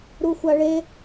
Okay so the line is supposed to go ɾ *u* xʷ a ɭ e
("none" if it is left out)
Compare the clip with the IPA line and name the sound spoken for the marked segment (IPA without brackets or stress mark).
u